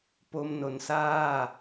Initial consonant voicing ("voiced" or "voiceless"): voiceless